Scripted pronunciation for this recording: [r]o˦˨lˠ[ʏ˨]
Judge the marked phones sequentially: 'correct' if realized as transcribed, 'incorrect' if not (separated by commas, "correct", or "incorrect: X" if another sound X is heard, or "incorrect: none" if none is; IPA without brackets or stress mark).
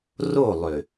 correct, correct